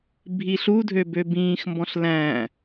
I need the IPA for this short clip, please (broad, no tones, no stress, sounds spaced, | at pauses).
bʱ i ɬ u dʱ ø b ø b ĩː x m b ɔ̃ ɬ l æ̃